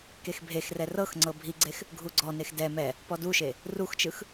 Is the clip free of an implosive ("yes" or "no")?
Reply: yes